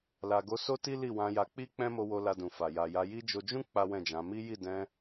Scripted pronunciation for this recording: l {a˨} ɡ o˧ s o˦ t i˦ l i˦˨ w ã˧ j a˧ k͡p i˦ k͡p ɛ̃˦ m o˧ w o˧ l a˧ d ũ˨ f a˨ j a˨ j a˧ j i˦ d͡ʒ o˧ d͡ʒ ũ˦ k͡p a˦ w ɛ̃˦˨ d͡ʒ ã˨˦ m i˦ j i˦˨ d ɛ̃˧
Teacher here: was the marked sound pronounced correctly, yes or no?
yes